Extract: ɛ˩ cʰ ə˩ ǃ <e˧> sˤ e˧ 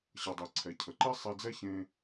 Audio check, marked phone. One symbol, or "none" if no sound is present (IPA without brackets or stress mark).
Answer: e˥